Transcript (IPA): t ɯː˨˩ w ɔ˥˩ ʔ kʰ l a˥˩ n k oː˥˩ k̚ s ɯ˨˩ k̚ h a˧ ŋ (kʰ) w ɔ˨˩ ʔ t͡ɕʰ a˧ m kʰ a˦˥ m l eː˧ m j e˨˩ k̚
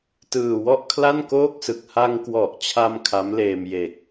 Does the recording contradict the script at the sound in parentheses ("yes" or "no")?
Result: yes